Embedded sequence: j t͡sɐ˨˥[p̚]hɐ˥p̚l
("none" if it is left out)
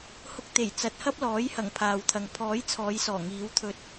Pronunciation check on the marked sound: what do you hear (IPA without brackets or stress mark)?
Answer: t̚